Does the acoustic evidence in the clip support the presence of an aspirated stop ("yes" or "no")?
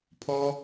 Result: yes